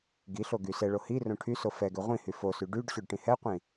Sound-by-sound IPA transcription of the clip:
ɡ i ɬ o ɡ y s ɛ ɭ o h i r õ ʈʰ y s o f ɛ ɡ ø ʁʷ ĩ h y f o s y ɖ y ɖ ɕ ø ɖ ʈ ĩ h ɛ qʷ ĩ

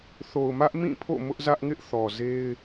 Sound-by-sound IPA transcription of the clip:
θ o˨ ʊ̯ m ä˦ ʔ m ĩ˦˨ pʰ o̰˦˨ m ʊ˦ ʔ z ä˦ ʔ ŋ ɪ˦ ʔ θ ɔ˨ z e˦ ɪ̯

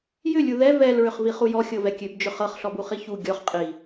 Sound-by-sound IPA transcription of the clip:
j ʏ lʲ u ð ɛ v ɛ l ɹ ʏ χ v i χ u j ɔ xʲ ɤ v ɛ kʲ ø b d͡ʒ ʏ χ ɤ χ ɬ ɔ b u χ i ç u ɡʲ ɔ χ qʼ i

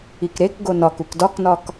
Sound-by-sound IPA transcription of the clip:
i k ɾ e k ɡ o n ɒ k u k d ɒ k n ɒ k

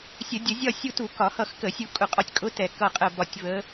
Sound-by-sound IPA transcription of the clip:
sʲ ə˧˩˧ dʲ ə˧˩˧ zʲ ɒ˦˨ sʲ u˦˨ t u˧˩˧ k ɒ˧˩˧ h ʌ˦˨ x k ə˧˩˧ sʲ u˦˨ kʼ ʊ˧˩˧ qʼ ɒ˦˨ tʲ kʼ ʊ˧˥ t ɛ˦˨ k ʌ˦˨ qʼ ə˦˨ b ɒ˦˨ tʲ v ə˧˥

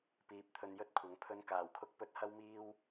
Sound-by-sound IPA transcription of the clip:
p iː˨˥ p̚ t̪ʰ ɵ˧ n j ɵ˥ t̚ kʷʰ ɐ˨˧ ŋ pʰ ɵ˧ n k aː˨˩ w kʰ ʊ˧ k̚ p ɵ˨˥ t̚ h ɐ˥ w m iː˥ w

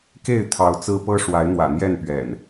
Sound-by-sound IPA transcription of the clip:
k e˥˨ ɪ̯ t̪ʰ ɑ˨˦ ʊ̯ t͡s ɹ̩˦ p ɤ˦ ʂ w a˨˦ ɪ̯ n̪ w ä̰˨˩ n̪ j ɛ˥˨ n p ɥ ɛ̰˨˩ n

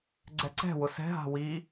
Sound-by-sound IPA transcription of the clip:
ɡ͡ǀ ɛ ǀ ɛ̤ w ʊ s ɛ̤ ɦ a̤ w i

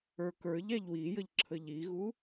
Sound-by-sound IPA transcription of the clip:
ə˞ k ə˞ ʎ æ ʎ w i j ə ʎ ǁʰ ə ʎ i ɣ u

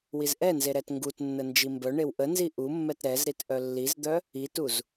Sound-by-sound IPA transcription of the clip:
w i z ʔ ɛ n z e ɾ ɛ t ŋ ɡ u t nː ə n d͡ʒ i m b œ ɳ e w ʔ ə n z i ʔ u mː ɛ t ɾ ɛ z ɾ i t ʔ œ lː i z d̪ œ | i t u z

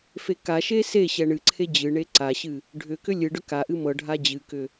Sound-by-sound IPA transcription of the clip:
f e k a ʃ e s e ɕ ɛ ɳ ɨ ǀʰ e d͡ʑ ɨ ɳ e ǀ a ɕ ɨ | ɖʱ ʏ k ʏ lʲ ɨ ɖ ʏ k a ʔ ɨ m ɤ ɖʱ a d͡ʑ ɨ k ʏ

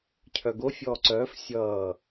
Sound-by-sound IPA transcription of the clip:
cʰ œ ɡ o fʲ ɔː ǀ œː f sʲ ʌː

